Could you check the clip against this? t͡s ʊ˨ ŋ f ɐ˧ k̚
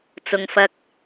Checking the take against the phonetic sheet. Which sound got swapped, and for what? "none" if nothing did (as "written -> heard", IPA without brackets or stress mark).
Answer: none